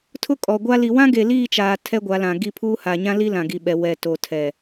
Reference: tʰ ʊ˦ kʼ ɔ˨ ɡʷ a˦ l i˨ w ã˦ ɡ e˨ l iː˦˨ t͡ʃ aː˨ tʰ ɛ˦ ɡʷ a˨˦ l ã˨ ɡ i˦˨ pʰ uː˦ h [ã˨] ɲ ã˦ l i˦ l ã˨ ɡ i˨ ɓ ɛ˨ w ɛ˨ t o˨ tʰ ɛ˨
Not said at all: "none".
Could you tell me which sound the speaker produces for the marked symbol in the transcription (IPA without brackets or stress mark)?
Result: a˨